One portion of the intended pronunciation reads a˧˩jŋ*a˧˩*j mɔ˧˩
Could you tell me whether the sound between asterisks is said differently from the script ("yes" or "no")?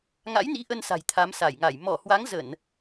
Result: no